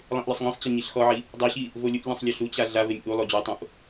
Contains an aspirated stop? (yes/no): no